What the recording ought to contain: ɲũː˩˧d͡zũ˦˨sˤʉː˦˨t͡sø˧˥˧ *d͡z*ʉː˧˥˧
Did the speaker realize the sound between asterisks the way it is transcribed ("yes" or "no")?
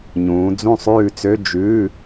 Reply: no